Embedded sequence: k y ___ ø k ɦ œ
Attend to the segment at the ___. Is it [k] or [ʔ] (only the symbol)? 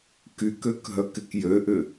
k